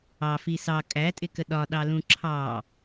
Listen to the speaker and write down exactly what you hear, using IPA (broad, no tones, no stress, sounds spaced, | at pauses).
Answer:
ɑ f i s ɑ kʼ æ tʼ ɪ k ə ɗ ɒ ɗ ɑ l ũ ǁʰ ɑ